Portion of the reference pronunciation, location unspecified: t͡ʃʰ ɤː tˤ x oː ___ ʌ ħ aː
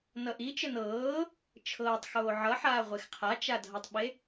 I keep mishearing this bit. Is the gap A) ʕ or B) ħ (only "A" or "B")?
A